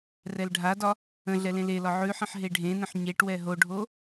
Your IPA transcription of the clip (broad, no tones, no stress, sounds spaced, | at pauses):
r ɛ l ɖʱ a d ɒ | ə̃ ɮ ɛ l ẽ l e l ɒ ʕ ʉ ħ ə̃ ħ ɦ e ɖʱ ẽ n ə̃ ħ ɲ e ʈ w ɛ ɦ o ɖʱ o